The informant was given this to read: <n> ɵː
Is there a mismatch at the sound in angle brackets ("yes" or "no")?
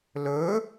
yes